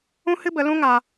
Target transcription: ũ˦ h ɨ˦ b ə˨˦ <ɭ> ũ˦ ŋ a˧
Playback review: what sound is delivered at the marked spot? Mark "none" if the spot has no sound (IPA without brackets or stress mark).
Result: l